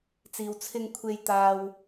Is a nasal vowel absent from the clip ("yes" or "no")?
yes